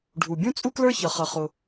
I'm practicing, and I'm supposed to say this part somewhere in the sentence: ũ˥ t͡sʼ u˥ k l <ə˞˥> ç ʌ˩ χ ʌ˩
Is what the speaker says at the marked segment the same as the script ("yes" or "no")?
yes